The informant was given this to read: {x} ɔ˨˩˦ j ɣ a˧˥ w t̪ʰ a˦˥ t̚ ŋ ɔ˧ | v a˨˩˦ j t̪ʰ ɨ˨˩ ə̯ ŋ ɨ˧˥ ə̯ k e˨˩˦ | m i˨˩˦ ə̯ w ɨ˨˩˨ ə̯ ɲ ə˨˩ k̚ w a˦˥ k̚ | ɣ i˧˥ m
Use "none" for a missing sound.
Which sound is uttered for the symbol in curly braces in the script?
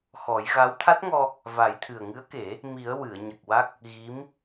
x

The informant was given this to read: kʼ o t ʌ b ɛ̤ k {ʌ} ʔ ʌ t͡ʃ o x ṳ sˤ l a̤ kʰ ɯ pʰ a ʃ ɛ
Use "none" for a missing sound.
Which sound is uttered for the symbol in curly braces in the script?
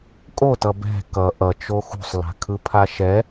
ʌ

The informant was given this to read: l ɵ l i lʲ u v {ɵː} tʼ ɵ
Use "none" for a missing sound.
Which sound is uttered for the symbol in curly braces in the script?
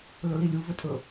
ɵ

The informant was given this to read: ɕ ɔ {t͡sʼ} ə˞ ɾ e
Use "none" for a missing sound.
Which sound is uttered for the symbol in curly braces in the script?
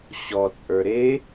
t͡sʼ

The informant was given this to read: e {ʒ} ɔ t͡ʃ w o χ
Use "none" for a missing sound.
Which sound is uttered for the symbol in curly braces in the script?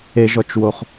ʒ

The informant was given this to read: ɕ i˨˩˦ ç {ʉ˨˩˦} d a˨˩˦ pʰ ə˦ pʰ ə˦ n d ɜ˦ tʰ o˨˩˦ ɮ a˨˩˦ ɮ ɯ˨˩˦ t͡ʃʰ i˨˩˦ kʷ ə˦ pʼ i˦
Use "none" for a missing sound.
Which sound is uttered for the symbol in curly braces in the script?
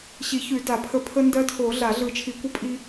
ʉ˨˩˦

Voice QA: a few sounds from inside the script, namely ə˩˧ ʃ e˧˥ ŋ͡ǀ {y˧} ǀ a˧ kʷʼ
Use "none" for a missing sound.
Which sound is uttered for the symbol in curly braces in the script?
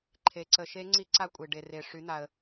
i˧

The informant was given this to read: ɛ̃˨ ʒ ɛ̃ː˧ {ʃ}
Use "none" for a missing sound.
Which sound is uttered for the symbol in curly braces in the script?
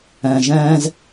z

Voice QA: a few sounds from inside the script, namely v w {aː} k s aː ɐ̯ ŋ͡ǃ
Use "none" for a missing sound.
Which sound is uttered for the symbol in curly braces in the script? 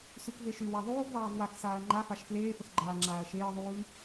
a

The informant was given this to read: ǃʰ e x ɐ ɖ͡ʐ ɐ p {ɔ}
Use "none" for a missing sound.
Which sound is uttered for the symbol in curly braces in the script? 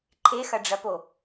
o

